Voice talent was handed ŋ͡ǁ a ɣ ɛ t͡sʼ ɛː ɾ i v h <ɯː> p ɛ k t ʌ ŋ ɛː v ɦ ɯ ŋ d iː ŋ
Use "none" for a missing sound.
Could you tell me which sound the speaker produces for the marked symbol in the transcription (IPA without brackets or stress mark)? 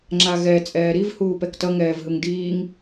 uː